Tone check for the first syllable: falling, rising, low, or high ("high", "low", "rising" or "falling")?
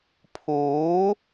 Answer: rising